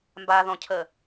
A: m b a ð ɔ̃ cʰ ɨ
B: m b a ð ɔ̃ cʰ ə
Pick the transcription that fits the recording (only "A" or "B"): B